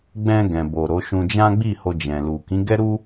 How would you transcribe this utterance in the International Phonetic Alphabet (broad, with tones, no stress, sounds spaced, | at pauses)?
ɡ͡b ɛ̃˧ ɡ ɛ̃˨ b o˨ ɾ o˨˦ ʃ ũ˧ d͡ʒ ã˦ ɡ͡b i˦˨ h o˧ d͡ʒ ɛ̃˨ l u˨ k ĩ˨˦ ɡ ɛ˦ ɾ u˦